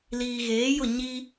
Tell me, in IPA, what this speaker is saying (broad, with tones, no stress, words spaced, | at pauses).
liː˨ɣeː˨˦jʊ˦˨ ɲi˦